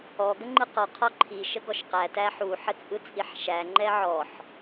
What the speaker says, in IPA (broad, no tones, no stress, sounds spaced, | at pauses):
ɔ ɡ ə ŋ͡ǃ ɯ q ɔ qʰ ɔ ǃʰ i ʃ ə ɡ ɔ ʃ q æ t æ ħ u ħ ə t͡sʼ ɯ t͡sʼ i ħ ʃ æ ŋ͡ǃ ɛ ʕ ɔ ħ